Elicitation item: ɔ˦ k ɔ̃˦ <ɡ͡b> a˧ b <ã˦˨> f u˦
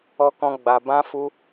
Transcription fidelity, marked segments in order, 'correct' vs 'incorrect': correct, incorrect

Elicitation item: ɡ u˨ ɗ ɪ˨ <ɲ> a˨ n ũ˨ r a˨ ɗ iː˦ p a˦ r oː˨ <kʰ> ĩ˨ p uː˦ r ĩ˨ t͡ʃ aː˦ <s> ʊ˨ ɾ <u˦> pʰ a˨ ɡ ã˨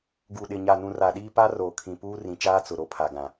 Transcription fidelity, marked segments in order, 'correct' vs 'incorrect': correct, correct, incorrect, incorrect

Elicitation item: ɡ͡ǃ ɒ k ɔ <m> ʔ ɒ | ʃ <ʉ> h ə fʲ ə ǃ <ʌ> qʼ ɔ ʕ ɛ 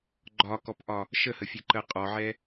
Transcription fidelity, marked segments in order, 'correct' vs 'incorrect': incorrect, incorrect, incorrect

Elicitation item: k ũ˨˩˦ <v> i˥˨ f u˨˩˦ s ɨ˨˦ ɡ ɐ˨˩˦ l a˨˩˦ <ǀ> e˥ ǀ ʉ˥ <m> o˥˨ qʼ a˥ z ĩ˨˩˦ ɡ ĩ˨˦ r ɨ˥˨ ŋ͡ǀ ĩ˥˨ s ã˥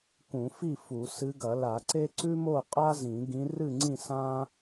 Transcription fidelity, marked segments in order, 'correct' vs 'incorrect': incorrect, correct, correct

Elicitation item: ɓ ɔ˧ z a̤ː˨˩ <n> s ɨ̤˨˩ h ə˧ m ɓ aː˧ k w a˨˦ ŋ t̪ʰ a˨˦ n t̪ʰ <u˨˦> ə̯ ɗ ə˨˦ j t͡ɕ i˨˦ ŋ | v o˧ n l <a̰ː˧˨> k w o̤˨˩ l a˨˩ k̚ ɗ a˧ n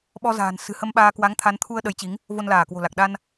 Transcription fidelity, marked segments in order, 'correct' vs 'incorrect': correct, incorrect, incorrect

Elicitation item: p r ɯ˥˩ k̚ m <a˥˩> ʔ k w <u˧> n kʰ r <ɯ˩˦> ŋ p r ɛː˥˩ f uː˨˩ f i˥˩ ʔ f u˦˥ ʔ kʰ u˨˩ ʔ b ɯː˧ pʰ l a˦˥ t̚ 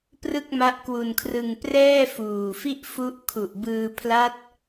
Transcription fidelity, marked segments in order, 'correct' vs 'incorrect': incorrect, correct, incorrect

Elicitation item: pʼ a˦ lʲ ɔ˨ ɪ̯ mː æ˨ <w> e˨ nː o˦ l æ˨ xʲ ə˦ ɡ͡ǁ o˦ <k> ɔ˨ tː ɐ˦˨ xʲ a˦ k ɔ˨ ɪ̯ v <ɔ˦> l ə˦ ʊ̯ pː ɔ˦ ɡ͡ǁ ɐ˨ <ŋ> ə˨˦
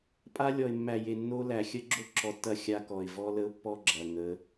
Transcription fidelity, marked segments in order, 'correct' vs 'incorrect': incorrect, incorrect, correct, correct

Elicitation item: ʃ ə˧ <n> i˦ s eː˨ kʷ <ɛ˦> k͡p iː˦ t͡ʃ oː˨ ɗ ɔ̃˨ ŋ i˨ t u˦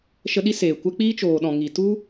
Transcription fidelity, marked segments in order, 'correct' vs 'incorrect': incorrect, correct

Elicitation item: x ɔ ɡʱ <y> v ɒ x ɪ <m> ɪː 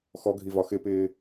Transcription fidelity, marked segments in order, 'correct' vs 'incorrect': incorrect, incorrect

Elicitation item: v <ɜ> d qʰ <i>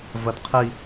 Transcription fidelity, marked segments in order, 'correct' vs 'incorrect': correct, correct

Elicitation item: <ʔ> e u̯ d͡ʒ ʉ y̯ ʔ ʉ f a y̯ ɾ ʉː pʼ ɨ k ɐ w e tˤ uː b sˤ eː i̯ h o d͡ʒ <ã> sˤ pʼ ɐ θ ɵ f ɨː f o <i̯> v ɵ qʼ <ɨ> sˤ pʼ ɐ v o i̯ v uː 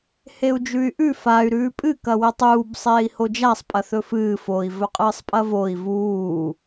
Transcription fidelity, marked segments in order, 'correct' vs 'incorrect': incorrect, incorrect, correct, incorrect

